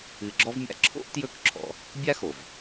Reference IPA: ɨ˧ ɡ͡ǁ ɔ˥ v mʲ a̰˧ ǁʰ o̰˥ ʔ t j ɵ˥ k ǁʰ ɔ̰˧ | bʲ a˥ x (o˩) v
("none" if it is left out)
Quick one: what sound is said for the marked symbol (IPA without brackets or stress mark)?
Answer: o˩